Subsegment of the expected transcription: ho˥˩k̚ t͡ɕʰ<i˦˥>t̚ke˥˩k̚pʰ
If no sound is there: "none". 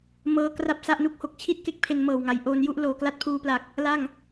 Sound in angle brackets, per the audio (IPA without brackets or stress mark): i˥˩